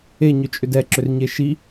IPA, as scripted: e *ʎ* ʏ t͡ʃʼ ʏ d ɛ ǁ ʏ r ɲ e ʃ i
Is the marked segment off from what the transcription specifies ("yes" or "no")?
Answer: yes